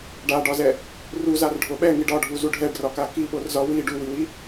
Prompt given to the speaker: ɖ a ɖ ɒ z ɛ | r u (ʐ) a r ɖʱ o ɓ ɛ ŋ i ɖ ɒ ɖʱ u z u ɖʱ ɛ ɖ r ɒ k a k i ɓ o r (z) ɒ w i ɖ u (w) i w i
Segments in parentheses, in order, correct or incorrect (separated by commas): incorrect, correct, correct